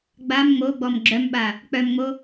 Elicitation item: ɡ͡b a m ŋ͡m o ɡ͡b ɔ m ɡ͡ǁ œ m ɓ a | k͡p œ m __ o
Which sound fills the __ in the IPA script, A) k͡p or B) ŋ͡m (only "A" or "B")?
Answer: B